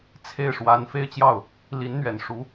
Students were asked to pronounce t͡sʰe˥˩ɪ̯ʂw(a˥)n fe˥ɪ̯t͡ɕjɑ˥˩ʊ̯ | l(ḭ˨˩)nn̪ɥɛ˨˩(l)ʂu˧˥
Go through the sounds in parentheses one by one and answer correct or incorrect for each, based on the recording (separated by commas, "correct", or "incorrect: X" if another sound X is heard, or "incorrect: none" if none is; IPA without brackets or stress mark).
incorrect: a˧˥, incorrect: i˧˥, incorrect: n